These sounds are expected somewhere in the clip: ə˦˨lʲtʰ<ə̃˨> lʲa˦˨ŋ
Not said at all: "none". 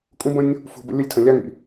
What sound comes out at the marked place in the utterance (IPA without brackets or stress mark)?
ə̃˨